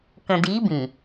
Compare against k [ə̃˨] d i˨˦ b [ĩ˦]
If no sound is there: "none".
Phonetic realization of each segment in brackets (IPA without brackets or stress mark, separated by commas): ə̃˨, ĩ˨